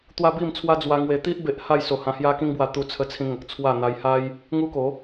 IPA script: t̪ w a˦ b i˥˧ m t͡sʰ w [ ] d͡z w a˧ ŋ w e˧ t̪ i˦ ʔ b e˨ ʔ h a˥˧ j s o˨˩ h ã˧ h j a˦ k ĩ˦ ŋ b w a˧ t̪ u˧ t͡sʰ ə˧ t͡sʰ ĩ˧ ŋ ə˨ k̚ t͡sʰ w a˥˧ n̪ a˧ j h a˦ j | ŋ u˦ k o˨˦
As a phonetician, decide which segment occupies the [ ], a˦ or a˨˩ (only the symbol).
a˦